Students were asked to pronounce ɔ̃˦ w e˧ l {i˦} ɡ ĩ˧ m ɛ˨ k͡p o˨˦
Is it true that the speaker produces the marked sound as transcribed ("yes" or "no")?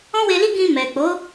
yes